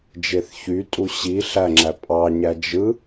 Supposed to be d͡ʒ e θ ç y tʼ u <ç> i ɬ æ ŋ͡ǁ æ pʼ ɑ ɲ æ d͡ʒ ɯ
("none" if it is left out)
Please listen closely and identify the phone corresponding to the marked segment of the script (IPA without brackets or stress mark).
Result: ɕ